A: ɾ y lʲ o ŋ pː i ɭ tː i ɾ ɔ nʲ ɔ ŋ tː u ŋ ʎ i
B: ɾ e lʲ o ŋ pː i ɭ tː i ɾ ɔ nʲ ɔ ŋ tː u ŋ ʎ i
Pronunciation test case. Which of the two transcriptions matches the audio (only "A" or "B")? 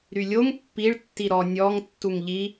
A